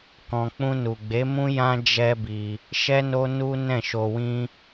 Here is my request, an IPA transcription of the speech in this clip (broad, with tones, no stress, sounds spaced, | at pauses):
k ɔ̃˨ k͡p ũ˧ n u˨ ɡ͡b e˨˦ m ũ˦ j ã˦ d͡ʒ ɛ˦ b i˧ | ʃ ɛ˦ n o˦ n u˦ n ɛ̃˦˨ ʃ o˧ w ĩ˦